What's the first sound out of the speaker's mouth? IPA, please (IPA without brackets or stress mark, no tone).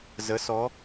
z